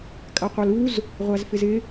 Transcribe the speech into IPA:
kʼ a qʷ a l u z | ʁʷ a z f ɪ z ɪ

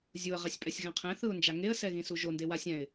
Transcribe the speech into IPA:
zʲ u ə̯ ʁ ɛ sʲ pʼ ɛ sʲ ɣ ɛ̃ qʰ ɛ̃ θ ɯ ʊ̯ n d͡ʒ a ŋ e ə̯ s ɛ ɣ ĩ s u ʒ o n d e w a sʲ ɛ̃ ɪ̯

